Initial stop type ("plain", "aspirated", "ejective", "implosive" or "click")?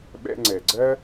implosive